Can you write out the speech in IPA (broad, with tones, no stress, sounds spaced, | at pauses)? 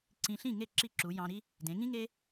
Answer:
ǀ ĩ˧ ɬ ĩ˥˩ ŋ e˥˩ ǁ i˥˩ ǁ u˩˥ j ɑ̃˧ ɾ i˥ | d ẽ˩˥ ŋ ĩ˥ ŋ e˥